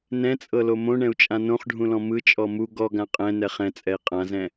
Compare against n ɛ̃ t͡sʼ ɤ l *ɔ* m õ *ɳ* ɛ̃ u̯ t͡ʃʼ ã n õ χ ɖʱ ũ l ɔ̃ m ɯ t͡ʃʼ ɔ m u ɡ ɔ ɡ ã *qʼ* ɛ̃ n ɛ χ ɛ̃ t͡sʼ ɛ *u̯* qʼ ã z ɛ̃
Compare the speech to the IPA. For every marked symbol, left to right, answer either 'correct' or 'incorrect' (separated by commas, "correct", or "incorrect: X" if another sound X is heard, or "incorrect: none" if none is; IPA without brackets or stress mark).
incorrect: o, correct, correct, incorrect: i̯